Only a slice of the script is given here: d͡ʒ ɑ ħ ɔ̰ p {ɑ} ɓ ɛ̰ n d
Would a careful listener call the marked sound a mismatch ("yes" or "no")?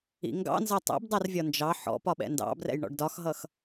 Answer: yes